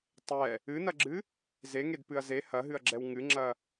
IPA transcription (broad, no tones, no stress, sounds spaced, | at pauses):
tˤ ɛ | ɨ n ɐ ɡ͡ǁ ɨ | z e ŋ e d p ɨ ɐ̯ z e h ɐ ɦ ɨ ɐ̯ ɡ͡ǁ ɛ w ŋ ɨ ŋ͡ǁ ɐ